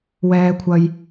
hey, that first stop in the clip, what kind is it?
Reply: aspirated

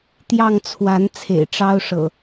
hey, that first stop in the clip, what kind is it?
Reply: plain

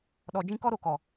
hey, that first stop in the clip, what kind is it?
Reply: implosive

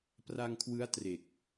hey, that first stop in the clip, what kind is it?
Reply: plain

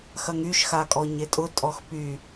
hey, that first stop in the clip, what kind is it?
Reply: ejective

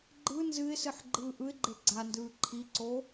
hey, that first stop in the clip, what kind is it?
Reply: click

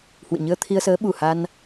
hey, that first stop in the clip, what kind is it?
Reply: aspirated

